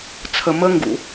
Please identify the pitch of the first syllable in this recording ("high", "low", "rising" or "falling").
low